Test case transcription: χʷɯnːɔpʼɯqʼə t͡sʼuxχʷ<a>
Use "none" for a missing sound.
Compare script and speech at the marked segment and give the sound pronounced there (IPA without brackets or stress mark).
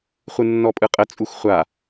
a